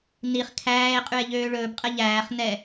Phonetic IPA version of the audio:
n i χ kʰ æː e̯ qʼ y e̯ ʎ øː ɭ ɵː b qʼ ɛ ʎ æː χ n ɛ

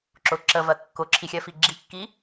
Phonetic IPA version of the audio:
ǁ ʊ ǁ ə v ɜ kː ʊ ǁʰ i xʲ ɜ f i ɡ͡ǁ i kː i

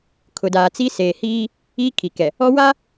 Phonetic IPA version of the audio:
kʰ ʊ˨ d aː˨ t͡s i˦ s eː˨ h iː˦ | iː˦ kʰ i˨ k ɛ˨ | ɔ˦ w a˦

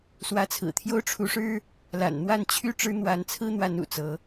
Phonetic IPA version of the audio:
s w ä˨˦ t͡sʰ ɹ̩˨˩ t̪ʰ j o˦ ʊ̯ ʈ͡ʂʰ u˨˦ ʂ ɻ̩˦ | l a̰˨˩ n n̪ w a˥˨ n t͡ɕʰ y˥˨ ʈ͡ʂ ɻ̩˦ n̪ w a˨˦ n t͡sʰ ɹ̩˦ n̪ w a˨˦ n ṵ˨˩ t͡s ɤ˨˦

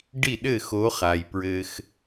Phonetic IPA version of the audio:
ɖ i˥˩ ɗ ɘ˥˩ x o˨˦ χ a˩ j p ɹ ɘ˩ x

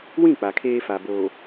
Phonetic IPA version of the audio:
w ĩ˦˨ k͡p a˨ kʰ eː˦ f a˨ b oː˨

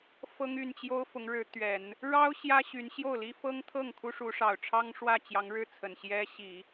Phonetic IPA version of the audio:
f ɤ˥ ŋ y˥˩ n t͡ɕ j o˥ ʊ̯ f ʊ˧˥ ŋ ɻ ɻ̩˧˥ t̪ ɥ ɛ˨˩˦ n | ɻ ɑ˥ ʊ̯ ɕ j ä˥ ɕ y˧˥ n ɕ j o˥˩ ʊ̯ l i˥ f ɤ˥ ŋ t̪ʰ ɤ˥˩ ŋ kʰ u˥ ʂ u˧˥ ʂ ɑ˨˩ ʊ̯ ʈ͡ʂʰ ɑ˥ ŋ ʂ w ä˥˩ t͡ɕ j ɑ˧˥ ŋ ɻ ɻ̩˥˩ t͡sʰ ə˨˩ n ɕ j ɛ˥ ɕ i˨˩˦

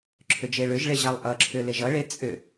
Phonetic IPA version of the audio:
ǁʰ ʏ d͡ʒ e ɭ ʏ ʒ ɭ e ʑ a lˠ ʔ ʌ ǁʰ ʏ l e ʒ ʌ ɭ e t͡sʼ ʏ

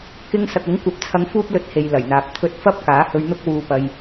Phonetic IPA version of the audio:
k ɪ˧ ŋ s ɐ˨ k̚ ʊ˨˥ ŋ kʷ ɐ˨˥ p̚ t͡sʰ ɐ˧ ŋ f uː˥ p̚ l ɵ˧ t̚ h e˨ j l ɐ˨˩ j n̪ aː˨ p̚ t̪ʰ ɵ˧ t̚ f ɐ˥ p̚ k aː˨˥ h ɵ˧ ɥ n̪ ʊ˥ k̚ w uː˧ p ɐ˧ j

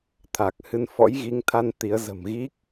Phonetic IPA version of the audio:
t̪ʰ a˨˩ k̚ h ɨ˧ n f ɔ̰˧˥ j ɣ i˨˦ ŋ t̪ʰ a˧ n t̪ i˨˦ ə̯ z ə̤˨˩ m ɣ i˦˥ k̚

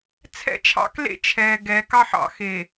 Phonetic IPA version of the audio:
t͡sʰ ɛ̰˦ t͡ʃʰ ɑ̰˦ k l ḛ˦ t͡ʃʰ ɛː˨ ɡ ɛ˨˦ k ɑ˦ ħ ɑ̰˨ x e˨

